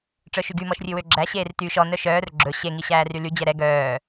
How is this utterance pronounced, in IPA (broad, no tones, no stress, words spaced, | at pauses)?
ʈ͡ʂœʃyɡy mɔʃrʲʉwøɡ͡ǁæ ɕeːrtyːʃɔ nœʃœːr ɡ͡ǁɵ ɕe ŋiɕæːryly d͡ʑɛɾɛ ɡœː